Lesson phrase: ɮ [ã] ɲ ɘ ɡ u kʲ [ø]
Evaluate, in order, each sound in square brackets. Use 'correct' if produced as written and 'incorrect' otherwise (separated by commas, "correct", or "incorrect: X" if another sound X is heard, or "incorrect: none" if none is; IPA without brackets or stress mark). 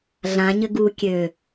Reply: correct, correct